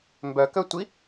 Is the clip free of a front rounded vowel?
no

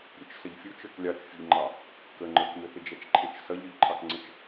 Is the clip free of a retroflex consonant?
yes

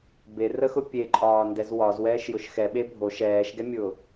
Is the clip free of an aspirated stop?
yes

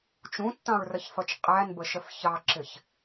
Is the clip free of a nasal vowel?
no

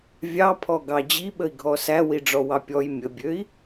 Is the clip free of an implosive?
no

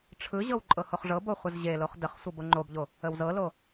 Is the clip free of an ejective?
no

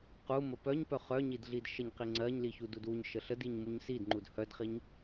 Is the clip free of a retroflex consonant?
yes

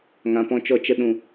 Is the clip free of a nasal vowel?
no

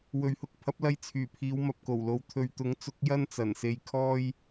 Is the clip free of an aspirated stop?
no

